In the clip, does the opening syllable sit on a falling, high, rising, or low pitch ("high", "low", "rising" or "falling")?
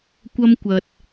high